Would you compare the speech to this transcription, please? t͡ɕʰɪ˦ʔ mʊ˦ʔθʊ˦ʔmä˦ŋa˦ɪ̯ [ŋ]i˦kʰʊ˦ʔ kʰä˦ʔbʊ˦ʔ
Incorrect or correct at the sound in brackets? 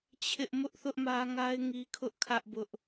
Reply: correct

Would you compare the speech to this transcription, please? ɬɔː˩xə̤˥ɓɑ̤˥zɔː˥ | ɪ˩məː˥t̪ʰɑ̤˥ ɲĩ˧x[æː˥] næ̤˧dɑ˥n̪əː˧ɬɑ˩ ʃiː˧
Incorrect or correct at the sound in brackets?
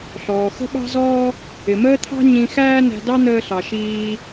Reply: correct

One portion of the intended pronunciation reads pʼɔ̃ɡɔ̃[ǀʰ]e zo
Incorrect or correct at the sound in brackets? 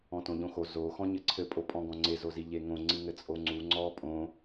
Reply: incorrect: ŋ͡ǀ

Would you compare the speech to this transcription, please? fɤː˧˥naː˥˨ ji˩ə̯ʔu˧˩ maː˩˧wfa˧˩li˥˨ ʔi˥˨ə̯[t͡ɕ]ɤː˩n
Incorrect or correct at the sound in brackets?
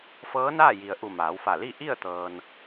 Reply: incorrect: t̪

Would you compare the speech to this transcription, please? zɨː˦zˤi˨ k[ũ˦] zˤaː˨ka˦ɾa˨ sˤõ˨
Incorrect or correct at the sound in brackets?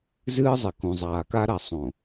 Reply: incorrect: ũ˨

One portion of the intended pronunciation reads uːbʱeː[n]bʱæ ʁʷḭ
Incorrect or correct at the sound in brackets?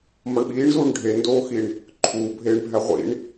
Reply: incorrect: ɳ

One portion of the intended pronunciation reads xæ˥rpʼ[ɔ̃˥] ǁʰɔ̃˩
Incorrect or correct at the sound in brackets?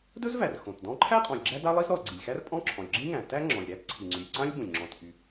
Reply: correct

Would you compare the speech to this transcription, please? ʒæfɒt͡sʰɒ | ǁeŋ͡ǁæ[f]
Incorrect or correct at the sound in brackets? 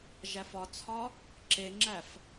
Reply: correct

